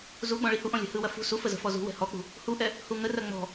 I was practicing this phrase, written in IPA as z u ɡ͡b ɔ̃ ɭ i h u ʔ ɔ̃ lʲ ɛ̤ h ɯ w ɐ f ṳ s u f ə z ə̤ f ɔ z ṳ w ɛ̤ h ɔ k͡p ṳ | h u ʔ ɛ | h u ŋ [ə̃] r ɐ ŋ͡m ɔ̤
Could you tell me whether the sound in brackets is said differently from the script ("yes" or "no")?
yes